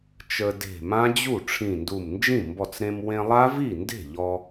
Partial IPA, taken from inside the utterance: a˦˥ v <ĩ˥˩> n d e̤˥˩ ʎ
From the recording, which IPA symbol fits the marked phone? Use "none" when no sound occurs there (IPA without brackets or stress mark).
i˥˩